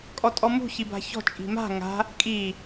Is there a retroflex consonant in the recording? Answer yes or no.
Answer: no